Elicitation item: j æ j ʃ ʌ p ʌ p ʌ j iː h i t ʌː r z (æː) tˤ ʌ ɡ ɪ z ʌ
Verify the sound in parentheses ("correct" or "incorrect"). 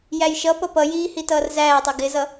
correct